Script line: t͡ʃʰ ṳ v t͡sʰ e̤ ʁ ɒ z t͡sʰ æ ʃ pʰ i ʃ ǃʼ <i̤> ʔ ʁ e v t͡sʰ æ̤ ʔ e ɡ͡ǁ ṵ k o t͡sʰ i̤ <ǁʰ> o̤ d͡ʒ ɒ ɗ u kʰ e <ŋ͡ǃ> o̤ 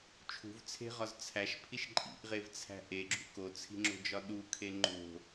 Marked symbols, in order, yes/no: no, no, yes

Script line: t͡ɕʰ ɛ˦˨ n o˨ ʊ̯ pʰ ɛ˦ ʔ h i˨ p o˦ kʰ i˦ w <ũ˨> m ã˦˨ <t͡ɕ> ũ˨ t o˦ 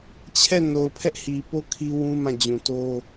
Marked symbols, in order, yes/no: no, no

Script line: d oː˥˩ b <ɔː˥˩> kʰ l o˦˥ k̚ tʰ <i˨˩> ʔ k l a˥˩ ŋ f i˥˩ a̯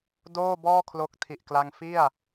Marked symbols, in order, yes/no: yes, yes

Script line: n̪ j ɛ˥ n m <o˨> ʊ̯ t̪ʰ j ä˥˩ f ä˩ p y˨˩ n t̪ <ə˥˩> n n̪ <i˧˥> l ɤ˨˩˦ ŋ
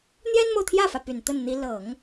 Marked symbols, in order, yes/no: yes, yes, yes

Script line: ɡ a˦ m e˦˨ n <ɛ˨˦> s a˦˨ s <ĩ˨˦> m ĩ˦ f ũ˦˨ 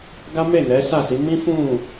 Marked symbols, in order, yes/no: yes, no

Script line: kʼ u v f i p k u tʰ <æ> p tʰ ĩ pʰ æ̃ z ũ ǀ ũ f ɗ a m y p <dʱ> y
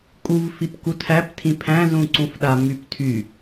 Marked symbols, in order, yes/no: yes, no

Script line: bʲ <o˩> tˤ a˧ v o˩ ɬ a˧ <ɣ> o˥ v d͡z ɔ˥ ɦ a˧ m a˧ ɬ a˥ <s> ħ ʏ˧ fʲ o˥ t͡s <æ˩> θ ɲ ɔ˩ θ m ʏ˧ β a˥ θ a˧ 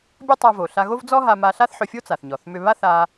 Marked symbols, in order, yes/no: no, yes, no, no

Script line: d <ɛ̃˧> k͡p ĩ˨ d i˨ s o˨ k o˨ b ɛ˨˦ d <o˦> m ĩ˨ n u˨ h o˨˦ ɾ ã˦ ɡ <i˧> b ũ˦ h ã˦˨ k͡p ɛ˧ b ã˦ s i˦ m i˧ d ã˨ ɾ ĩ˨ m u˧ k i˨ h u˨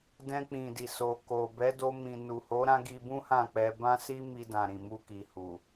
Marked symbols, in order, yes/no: yes, no, yes

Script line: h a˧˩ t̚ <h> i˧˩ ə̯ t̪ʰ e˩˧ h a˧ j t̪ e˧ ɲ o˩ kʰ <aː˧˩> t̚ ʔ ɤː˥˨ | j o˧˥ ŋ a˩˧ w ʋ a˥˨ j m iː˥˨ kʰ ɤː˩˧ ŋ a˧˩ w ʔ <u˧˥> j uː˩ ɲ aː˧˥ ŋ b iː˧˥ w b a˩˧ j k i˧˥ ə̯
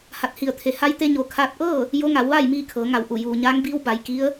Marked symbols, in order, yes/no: yes, no, no

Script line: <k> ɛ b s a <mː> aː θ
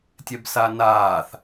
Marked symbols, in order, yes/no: no, no

